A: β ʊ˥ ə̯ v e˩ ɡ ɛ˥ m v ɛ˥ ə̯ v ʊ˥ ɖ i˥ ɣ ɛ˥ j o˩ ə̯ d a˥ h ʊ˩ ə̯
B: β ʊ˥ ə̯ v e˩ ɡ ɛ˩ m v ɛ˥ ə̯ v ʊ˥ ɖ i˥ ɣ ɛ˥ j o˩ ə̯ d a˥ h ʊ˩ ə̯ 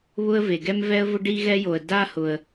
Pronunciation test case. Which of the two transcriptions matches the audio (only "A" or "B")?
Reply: A